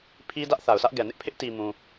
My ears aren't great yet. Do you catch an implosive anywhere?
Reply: no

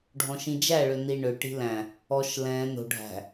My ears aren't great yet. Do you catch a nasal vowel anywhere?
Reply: yes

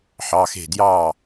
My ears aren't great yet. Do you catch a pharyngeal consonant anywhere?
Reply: yes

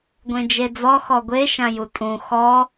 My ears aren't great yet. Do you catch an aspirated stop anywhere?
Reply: no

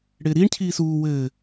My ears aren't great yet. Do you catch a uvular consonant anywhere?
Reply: no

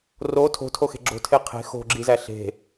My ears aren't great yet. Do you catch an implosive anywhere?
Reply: no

